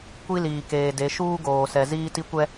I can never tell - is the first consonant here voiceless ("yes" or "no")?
yes